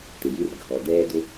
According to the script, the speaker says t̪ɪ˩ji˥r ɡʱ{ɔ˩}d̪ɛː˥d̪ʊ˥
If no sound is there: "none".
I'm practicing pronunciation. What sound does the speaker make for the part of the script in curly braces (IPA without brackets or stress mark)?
ɔ˩